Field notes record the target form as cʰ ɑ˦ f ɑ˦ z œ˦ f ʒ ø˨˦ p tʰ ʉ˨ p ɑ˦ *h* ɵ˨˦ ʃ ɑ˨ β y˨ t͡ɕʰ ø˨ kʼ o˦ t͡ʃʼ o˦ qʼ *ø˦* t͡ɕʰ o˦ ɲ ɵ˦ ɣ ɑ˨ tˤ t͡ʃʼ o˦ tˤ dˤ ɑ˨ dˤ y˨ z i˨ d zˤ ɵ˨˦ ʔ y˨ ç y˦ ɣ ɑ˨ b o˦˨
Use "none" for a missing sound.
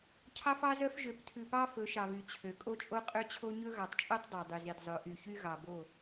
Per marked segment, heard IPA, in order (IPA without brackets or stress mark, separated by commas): f, ø˦